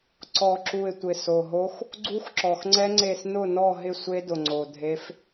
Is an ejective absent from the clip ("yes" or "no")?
yes